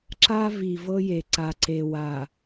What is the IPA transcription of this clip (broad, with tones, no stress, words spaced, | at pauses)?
ǁa˦ vi˨vɤ˦je˨ǀa˨ ǀe˨wa˨